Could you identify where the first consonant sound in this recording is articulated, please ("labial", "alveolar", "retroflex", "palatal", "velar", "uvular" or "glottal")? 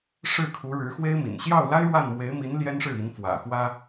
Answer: retroflex